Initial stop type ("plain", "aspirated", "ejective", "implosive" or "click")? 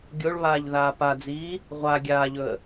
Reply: plain